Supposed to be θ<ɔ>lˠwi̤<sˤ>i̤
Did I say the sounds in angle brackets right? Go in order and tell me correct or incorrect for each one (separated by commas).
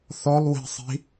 correct, correct